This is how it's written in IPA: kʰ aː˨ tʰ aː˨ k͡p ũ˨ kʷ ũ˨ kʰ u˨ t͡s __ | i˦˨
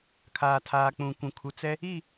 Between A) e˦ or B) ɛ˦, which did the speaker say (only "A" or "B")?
B